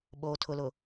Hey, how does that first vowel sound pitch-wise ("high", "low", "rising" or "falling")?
low